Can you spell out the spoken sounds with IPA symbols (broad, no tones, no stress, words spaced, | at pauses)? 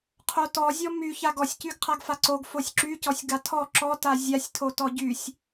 qʰotɔzʲɔ my çaɡɔsʲ cyɡqʰaɡfaǀoɡ fosʲǁycɔsʲ ɡatʰɔ ǁɔta zʲasʲtʰo tɔɟysʲ